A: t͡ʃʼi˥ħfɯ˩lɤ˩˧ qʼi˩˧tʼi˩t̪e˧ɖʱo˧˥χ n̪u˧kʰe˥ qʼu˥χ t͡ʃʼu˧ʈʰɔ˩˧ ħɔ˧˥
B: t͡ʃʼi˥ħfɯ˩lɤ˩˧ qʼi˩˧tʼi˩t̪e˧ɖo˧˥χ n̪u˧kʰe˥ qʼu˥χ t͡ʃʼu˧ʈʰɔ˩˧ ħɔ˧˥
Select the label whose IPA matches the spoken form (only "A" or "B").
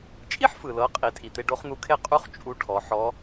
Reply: B